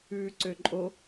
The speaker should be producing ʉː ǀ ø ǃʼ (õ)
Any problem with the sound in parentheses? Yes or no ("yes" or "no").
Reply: yes